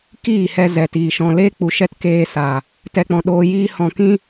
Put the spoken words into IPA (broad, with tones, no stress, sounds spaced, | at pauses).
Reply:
k iː˦˨ h ɛ˧ z ɛ˨ t iː˨ ʃ ɔ̃˧ l eː˦ k͡p u˨ ʃ ɛ˦ t k eː˧ s a˨ | t ɛ˧ k͡p ɔ̃˨ ɗ oː˧ j iː˦ h ɔ̃˧ k ĩ˦